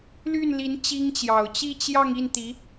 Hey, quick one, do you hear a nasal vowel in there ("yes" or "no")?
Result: no